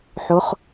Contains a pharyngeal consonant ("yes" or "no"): yes